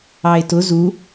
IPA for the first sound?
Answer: ɑ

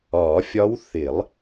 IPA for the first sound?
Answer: ɒː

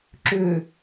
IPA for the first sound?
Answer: ǁ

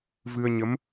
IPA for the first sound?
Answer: v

